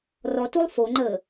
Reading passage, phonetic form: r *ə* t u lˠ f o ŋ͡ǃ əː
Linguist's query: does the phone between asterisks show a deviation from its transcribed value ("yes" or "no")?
yes